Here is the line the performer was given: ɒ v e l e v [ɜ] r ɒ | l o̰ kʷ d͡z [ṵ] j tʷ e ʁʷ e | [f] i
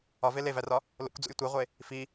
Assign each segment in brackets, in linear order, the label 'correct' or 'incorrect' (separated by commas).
incorrect, correct, correct